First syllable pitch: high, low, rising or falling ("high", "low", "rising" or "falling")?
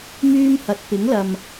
high